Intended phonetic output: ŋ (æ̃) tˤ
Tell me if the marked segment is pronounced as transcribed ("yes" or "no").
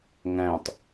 yes